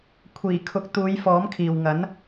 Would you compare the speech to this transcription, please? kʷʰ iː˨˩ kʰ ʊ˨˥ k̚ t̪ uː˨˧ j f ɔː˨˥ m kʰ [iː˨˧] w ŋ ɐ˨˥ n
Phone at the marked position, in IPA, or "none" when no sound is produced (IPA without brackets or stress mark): iː˨